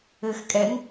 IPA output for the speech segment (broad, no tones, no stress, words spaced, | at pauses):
ɘx kʼɛŋ